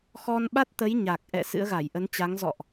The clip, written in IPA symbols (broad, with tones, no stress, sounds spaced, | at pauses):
x ɔ˧ n ɓ a˦˥ t̚ t̪ ə˨˦ j ɲ a˨˩ k̚ ʔ ɛ̰˧˨ s ɨ̰˧˥ ə̯ ɣ a˧˩ j ʔ ə˨˦ n t͡ɕ a˨˦ ŋ z ɔ̰˧˨ ʔ